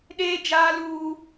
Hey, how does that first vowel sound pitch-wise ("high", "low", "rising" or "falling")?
high